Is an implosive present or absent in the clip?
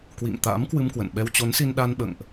present